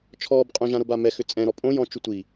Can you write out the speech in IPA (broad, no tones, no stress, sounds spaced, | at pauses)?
t͡ʃʰ ɔː b qʼ õ ʒ ã ɾ o b a m ɛ x ʏ t͡sʼ ɛ̃ ɾ ɔ pʼ õ j ɔ̃ t͡ʃ u tʷ i